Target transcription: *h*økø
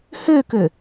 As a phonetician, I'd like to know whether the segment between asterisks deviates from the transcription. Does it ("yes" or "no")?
no